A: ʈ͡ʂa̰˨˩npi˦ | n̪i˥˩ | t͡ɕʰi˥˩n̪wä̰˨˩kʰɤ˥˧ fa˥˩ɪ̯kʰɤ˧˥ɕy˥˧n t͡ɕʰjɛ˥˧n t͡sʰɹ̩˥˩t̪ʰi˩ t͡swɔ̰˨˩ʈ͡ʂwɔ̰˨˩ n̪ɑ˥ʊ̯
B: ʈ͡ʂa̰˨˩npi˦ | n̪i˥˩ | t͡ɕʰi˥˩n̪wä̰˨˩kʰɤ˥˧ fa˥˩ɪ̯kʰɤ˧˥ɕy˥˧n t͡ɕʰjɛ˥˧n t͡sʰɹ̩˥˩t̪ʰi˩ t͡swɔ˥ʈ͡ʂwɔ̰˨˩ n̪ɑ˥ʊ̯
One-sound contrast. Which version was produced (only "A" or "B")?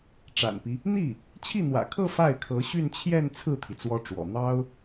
B